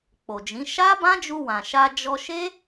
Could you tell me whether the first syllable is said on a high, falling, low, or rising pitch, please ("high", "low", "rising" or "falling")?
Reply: low